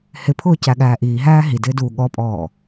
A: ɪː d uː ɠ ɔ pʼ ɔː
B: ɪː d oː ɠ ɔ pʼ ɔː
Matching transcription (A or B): A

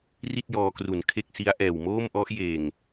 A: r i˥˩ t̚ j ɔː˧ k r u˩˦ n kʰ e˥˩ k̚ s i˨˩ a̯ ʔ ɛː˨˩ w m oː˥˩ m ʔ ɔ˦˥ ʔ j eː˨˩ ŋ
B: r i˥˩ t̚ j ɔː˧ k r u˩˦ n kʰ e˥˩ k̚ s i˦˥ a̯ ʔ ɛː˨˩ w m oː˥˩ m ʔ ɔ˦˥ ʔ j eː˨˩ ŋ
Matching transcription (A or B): B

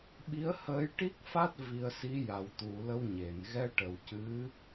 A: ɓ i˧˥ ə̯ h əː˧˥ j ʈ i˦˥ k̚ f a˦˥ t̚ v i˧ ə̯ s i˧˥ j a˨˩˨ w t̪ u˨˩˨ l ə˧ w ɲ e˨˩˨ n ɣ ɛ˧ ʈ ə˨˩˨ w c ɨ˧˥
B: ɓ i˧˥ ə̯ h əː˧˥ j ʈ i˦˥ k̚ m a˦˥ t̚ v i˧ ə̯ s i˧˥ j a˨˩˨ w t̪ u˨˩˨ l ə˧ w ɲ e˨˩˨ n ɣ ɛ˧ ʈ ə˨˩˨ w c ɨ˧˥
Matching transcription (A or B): A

